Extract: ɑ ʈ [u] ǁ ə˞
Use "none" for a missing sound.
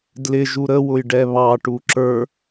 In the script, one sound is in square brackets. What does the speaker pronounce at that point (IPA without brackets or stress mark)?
u